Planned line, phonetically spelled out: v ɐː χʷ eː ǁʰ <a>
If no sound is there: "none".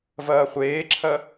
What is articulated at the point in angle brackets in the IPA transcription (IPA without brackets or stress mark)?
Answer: ɐ